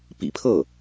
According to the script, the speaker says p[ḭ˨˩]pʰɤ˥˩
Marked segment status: correct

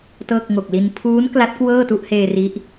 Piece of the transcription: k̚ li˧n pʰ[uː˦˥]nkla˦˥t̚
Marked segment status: correct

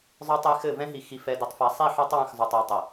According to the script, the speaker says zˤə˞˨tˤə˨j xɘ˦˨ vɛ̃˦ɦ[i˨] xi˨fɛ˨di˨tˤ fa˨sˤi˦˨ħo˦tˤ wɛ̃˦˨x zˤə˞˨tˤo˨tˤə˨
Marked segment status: correct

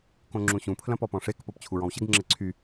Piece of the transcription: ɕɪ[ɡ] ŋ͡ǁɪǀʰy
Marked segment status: correct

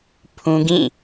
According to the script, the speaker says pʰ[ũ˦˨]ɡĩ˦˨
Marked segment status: incorrect: ũ˦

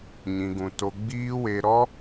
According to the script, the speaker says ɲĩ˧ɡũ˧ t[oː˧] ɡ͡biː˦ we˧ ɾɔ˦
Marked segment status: incorrect: o˧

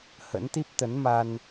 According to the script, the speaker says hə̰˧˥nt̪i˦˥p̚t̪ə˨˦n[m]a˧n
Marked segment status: correct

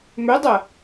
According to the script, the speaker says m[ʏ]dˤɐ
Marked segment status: correct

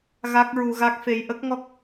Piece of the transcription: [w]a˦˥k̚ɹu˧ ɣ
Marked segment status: incorrect: ɣ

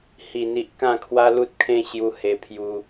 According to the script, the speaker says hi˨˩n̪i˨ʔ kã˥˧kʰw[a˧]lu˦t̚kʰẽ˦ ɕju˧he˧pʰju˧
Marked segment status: incorrect: a˦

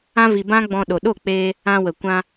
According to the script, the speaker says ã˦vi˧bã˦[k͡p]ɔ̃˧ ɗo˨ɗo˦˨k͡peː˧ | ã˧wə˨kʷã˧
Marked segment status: incorrect: ɡ͡b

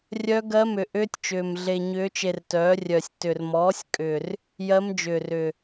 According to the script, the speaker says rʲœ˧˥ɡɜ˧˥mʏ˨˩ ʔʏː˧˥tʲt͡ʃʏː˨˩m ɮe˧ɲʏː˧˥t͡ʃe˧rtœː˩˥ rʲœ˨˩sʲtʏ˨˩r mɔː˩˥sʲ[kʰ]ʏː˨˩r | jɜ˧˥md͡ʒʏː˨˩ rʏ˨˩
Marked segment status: incorrect: kʼ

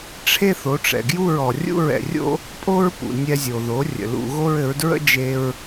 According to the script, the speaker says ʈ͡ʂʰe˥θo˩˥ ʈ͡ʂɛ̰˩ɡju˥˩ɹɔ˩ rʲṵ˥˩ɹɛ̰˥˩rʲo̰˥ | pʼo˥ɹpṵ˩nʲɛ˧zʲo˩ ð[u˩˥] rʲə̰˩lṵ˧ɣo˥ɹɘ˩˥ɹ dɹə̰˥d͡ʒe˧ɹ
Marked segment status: incorrect: o˩˥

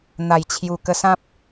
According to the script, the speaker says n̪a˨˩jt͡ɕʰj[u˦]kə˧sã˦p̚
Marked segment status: incorrect: u˨˩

